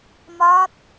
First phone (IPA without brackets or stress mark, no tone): m